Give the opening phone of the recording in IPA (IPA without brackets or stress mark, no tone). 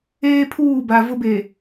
eː